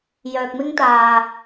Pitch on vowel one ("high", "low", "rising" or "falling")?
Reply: low